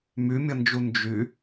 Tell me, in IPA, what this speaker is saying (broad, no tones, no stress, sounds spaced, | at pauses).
m y mʲ ə n d͡ʒ u n d͡ʒ y